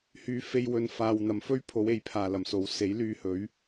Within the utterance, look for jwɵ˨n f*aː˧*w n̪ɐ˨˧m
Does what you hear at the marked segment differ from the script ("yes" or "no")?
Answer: yes